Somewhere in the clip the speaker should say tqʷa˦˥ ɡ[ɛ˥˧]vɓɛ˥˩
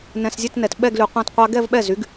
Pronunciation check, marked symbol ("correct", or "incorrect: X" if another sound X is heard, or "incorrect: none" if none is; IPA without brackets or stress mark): correct